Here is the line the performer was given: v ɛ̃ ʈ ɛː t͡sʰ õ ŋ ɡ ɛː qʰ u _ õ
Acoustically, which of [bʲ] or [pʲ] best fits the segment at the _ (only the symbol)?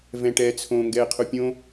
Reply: pʲ